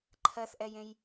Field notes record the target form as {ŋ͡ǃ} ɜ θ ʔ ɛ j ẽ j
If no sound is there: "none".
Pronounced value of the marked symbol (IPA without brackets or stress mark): ǃʰ